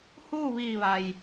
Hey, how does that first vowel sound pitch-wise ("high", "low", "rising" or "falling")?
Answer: falling